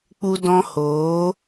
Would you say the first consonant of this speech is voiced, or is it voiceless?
voiceless